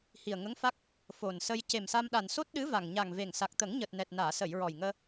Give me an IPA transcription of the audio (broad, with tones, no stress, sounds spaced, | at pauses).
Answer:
h i˨˩ ə̯ ŋ ə˧˥ ŋ f a˦˥ k̚ | f o˨˩ n s ə˧ j c e˨˩ m s a˧ m ɗ a˨˩ n s o˦˥ t̚ ɗ ɨ˧˥ v a˨˩ ŋ ɲ a˨˩ ŋ v e˨˩ ŋ s a˨˩ k̚ t̪ ə˨˩˦ ŋ ɲ əː˨˩ t̚ n ɛ˨˩ t̚ n aː˨˩˨ s ə˨˩˨ j ɹ ɔ˨˩ j ŋ əː˧